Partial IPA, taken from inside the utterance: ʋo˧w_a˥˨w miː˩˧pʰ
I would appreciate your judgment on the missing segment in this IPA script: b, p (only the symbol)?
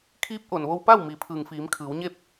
p